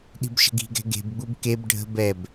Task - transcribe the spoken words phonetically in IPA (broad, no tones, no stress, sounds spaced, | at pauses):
ɗ i̤ b ʃ ə̤ ɡ i̤ ɡ ɛ̤ ɡ e̤ b ɡ͡b u b k e b ɖʱ ə̤ b ɛ b